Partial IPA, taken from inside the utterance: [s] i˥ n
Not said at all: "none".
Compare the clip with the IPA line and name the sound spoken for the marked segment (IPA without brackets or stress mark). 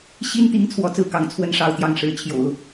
ɕ